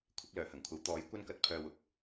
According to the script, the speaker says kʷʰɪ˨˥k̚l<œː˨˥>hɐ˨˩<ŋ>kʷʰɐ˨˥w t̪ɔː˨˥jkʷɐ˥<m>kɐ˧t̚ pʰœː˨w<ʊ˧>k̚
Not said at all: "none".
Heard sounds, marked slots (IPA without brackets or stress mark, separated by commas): œː˨˩, ŋ, n, ʊ˨˥